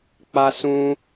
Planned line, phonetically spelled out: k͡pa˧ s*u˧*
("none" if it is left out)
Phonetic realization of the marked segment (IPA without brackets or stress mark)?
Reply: ũ˧